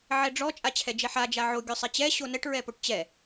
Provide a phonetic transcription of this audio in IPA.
ʕ ɛ ɖ͡ʐ ɔ t͡ʃʼ a t͡ɕʰ ɛ d͡ʒ ɛ ħ a d͡ʒ a ʕ o ɡʲ o sˤ ɛ t͡ɕ ɛ ɕ o n ɛ ʈ ɹ ɛ p o ʈ t͡ɕ ɛ

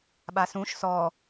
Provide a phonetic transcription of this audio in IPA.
ɓ a s ũ ʃ s ɔ

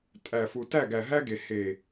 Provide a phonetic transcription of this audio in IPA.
tʼ æ˨ f u˨ t æ˦˨ ɡ æ˨ ɦ æ˦ ɡ e˨ h e˨

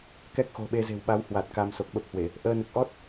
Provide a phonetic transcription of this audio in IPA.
k ɛ˦˥ k̚ x o̤˨˩ ɓ e˧ z e̤˨˩ w ɓ a˨˦ w h w a˨˩ t̚ k a˧ m s o˨˩ k̚ ɓ ə˦˥ p̚ h w e˧˩˨ | ʔ əː˧ n ɨ˨˩ k̚ ʔ ɔ˦˥ t̚

